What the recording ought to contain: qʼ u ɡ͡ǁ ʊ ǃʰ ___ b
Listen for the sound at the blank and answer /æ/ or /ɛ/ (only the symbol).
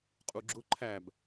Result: æ